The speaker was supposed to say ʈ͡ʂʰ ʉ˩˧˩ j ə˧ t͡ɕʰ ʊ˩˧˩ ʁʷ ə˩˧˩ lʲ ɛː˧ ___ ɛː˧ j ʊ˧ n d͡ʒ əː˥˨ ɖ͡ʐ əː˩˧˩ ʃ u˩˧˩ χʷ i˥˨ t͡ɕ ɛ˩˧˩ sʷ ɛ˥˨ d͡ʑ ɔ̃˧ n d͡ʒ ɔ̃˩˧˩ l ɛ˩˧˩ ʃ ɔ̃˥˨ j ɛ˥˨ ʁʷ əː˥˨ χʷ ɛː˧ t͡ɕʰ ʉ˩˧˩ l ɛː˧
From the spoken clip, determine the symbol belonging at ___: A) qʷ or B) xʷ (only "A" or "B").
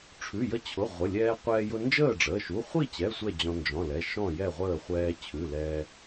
A